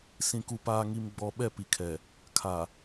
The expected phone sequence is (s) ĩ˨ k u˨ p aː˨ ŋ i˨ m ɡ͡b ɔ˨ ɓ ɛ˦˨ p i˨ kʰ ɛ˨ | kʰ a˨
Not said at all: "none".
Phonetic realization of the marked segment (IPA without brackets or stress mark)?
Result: s